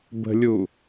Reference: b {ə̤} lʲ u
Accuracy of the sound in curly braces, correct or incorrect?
correct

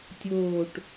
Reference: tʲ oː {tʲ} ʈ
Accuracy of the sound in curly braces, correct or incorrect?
incorrect: none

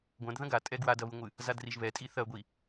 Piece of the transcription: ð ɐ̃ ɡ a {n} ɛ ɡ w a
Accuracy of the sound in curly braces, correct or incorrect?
incorrect: tʼ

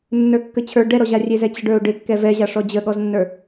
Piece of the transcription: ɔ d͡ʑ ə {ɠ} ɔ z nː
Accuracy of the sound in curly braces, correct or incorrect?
correct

